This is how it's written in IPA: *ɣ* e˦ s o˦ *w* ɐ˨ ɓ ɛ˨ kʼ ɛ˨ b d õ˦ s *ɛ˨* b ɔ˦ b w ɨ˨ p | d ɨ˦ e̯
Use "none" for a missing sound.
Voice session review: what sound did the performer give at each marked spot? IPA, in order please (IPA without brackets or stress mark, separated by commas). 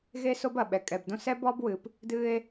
ɣ, b, ɛ˦